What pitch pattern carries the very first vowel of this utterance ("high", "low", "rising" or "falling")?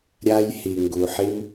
high